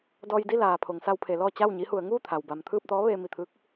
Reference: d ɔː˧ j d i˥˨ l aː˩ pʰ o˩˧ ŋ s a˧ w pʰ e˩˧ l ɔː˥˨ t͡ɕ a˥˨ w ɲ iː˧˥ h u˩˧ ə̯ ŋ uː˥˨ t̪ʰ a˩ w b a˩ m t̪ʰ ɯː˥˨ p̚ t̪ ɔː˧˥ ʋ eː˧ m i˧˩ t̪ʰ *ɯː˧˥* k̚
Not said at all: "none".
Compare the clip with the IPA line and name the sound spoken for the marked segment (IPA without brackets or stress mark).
ɯː˧˥